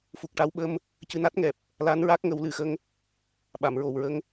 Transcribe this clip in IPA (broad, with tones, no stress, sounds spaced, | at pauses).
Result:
f u˨˩ k̚ ʈ a˧ w ɓ ə˧ m | c ɨ˧ n a˦˥ t̚ ŋ ɛ˨˩ p̚ | l a˧˥ n ɹ a˦˥ k̚ ŋ ə˨˩˦ w l ɨ˨˩˨ x ə˧ ŋ | ɓ a˨˩˨ m ɹ o˨˩ w ɹ ə˧ ŋ